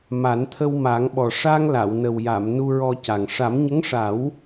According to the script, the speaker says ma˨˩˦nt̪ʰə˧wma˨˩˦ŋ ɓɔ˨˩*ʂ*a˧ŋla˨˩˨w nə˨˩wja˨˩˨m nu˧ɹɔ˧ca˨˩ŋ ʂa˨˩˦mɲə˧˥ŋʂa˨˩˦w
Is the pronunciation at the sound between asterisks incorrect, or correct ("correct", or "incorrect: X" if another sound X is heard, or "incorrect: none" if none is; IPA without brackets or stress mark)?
correct